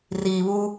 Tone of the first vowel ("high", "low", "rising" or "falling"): low